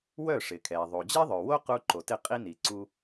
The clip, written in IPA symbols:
wœ˥˩ʂɪ˩kʰɛ˩ ðˤo˩d͡ʑɛ˥ðˤœ˩ wo˥qu˧ ǃo˩tɪ˥˩qʼi˥ni˩ ǀu˧

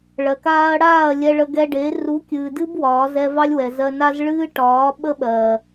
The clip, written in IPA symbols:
ɭɜ˨kaː˧ɐ̯ɽaː˦˨ɐ̯ lʲɛ˧ɭə˧ɡɛ˧ɖe˨˦ ru˨˦kʲɨː˨dɨ˦b wɒː˨˦zɛ˦ vɑ˦lʲwɛ˨zɜ˧ na˦z ɭɨː˦ʈɒː˨˦ ɓə˦ɓɜ˨

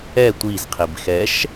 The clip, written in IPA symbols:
ɛ tʷiz qʰibxɛʃ

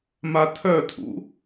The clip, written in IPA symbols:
matʰœtʰṵ

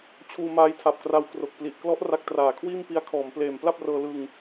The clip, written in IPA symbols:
t͡ɕʰuː˧maː˧jtʰa˨˩p̚kra˧w kro˨˩k̚pli˨˩ʔklɔ˦˥ʔ ra˦˥k̚traː˨˩kʰwiː˥˩m pi˧a̯kʰɔː˩˦mpleː˨˩m pla˥˩p̚rɤː˧ lɯ˧ŋ

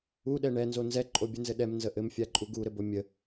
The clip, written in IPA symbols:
uɗɛ ɳɛnzo nzɛǃʼo bʲənzɘ ɗɛmnzə ʔɘmfʲaǃʼu ɡuɾɘbo mʲə

